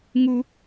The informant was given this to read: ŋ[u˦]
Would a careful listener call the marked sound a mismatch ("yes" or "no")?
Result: no